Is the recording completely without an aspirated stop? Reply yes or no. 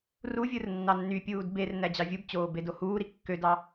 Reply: yes